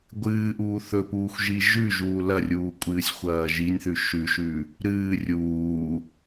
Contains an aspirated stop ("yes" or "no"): no